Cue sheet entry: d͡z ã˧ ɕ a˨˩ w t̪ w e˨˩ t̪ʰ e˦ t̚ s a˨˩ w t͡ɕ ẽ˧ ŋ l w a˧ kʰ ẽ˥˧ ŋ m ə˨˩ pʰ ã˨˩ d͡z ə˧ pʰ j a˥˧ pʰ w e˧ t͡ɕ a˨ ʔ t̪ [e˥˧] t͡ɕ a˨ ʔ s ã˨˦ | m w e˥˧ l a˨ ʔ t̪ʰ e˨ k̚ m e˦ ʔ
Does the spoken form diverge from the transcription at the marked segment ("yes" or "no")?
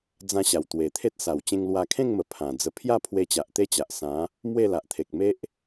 no